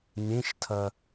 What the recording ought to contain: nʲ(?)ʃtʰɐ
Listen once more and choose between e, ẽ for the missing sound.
ẽ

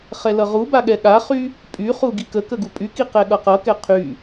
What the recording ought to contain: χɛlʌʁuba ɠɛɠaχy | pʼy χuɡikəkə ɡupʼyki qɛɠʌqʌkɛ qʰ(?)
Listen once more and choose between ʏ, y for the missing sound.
y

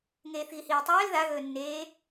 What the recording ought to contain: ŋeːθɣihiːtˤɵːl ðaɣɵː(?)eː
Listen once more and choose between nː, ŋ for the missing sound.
nː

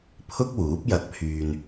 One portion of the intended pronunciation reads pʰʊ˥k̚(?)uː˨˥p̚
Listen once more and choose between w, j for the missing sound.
w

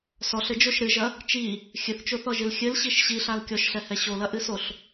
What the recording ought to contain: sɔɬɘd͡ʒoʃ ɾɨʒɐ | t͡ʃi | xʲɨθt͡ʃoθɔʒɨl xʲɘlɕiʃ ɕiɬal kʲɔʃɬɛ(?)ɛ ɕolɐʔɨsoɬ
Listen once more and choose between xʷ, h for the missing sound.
h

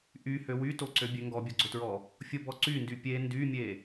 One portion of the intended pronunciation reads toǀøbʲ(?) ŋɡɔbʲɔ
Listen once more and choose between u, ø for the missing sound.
ø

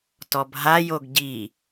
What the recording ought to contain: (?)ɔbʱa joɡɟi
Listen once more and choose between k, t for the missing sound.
t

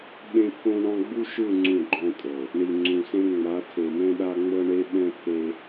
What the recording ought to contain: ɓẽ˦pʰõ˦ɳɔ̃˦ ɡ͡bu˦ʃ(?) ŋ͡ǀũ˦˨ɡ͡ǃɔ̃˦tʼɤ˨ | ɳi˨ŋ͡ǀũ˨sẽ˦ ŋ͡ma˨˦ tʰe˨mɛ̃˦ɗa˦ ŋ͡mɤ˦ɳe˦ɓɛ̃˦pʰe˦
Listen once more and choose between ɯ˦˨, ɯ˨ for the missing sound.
ɯ˦˨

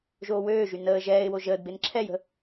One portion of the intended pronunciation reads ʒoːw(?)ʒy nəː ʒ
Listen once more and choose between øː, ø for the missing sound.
øː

